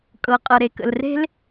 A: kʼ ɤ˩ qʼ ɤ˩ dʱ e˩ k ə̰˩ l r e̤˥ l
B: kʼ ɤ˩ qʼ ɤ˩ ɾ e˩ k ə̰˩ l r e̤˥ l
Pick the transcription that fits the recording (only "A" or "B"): B